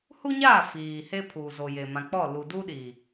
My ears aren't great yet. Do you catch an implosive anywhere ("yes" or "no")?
yes